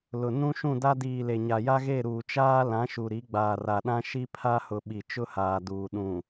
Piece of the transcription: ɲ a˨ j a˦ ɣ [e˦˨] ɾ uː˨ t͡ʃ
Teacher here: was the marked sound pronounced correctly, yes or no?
yes